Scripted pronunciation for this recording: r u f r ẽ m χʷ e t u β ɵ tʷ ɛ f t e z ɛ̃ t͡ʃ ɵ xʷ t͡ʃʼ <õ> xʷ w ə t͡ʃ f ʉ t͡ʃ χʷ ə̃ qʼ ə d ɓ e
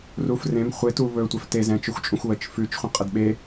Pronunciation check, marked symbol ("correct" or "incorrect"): incorrect